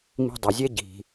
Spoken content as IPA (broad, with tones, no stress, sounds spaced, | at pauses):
m i̤˧ dˤ ø˩ zʲ ɛ˥ ɟ i̤˩